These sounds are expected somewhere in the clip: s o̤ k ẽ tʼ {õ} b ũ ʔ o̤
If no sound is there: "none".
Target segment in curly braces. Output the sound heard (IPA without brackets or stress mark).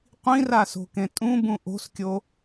ũ